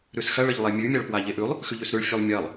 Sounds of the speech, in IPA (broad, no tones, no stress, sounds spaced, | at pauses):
ɾ ʉ s x ɐ ɭ ə ʎ lˠ e mʲ ʉ mʲ a ɭ p w a ʎ e ʔ ʉ lˠ | x ʉ ʎ ʉ s ɾ ʉ ɭ fʲ ʉ lˠ mʲ ɐ lˠ